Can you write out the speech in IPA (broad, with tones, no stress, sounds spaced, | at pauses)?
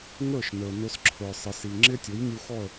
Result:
ŋ ə˞˥˩ ʃ n ə˞˩ n ʊ˧ s ǁʰ ə˞˩ sˤ ɪ˩ s i˩ ŋ͡ǁ ɪ˥ tʲ ʊ˩˥ j nʲ u˧ x ɔ˥˩ ə̯